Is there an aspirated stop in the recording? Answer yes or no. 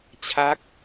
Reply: yes